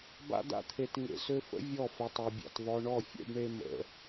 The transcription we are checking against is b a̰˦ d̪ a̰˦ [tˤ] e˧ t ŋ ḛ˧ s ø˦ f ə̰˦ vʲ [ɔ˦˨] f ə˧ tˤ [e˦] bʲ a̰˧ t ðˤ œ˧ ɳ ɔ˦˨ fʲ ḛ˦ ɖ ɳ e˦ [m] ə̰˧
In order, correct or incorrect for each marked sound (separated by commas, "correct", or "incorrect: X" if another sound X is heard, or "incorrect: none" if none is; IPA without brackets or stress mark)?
incorrect: t̪ʰ, correct, incorrect: e˧, correct